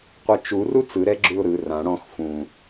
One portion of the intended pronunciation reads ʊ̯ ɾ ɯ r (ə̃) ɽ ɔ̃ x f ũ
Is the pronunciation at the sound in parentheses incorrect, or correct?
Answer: incorrect